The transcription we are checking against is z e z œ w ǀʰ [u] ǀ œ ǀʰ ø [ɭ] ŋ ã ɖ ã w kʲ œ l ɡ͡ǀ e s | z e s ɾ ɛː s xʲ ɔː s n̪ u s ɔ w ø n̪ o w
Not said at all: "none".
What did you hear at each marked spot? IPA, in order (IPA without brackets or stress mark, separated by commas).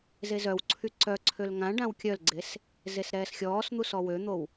y, l